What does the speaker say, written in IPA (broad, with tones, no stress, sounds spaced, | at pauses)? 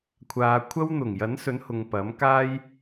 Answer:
kʷʰ aː˨ kʷʰ ɐ˥ w n̪ ʊ˨˩ ŋ j ɐ˨˥ n s ɵ˨˥ n h ʊ˨ ŋ p ɐ˨˥ m k aː˥ j